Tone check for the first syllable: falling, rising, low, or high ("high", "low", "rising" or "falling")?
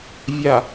low